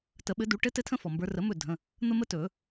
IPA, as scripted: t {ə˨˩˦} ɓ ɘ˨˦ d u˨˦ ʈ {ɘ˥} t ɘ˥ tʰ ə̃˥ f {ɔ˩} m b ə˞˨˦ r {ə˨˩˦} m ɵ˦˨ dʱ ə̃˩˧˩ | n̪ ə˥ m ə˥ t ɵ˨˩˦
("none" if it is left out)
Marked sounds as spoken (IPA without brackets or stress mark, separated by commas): ə˨˩˦, ɘ˥, ɔ˩, ə˨˩˦